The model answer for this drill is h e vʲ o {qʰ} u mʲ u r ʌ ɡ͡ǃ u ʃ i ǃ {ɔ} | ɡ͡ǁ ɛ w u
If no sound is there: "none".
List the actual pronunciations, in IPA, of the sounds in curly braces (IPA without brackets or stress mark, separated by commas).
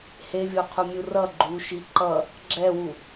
qʰ, ʌ